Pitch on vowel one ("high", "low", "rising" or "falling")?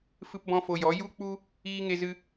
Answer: high